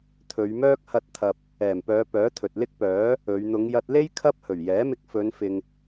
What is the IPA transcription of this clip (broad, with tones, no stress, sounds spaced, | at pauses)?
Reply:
t̪ʰ ɵ˨˧ ɥ m œː˥ k̚ h ɐ˧ t̚ t̪ʰ ɐ˨ p̚ | ɛː˨˩ m p œː˨˧ p œː˨˥ t̪ʰ ɵ˨ t̚ l ɪ˥ k̚ p œː˨˥ | ɵ˨˧ ɥ n̪ ʊ˨˧ ŋ j ɐ˧ t̚ l e˥ j kʰ ɐ˥ p̚ h ɵ˨˩ ɥ j ɛː˨˥ m ɪ˧ k̚ f ɵ˨˧ n f ɪ˨ ŋ